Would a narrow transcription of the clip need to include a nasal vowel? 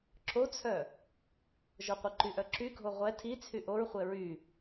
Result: no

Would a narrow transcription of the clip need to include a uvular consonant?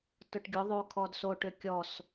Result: no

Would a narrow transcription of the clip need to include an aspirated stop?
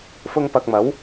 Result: no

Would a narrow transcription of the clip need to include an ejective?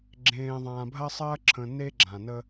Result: no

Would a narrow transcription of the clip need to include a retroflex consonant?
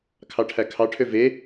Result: yes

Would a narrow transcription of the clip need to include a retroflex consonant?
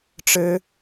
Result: yes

